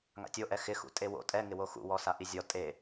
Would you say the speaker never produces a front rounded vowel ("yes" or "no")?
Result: yes